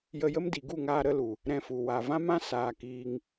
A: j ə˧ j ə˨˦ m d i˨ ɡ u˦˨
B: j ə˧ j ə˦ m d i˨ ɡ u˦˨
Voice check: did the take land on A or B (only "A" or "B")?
B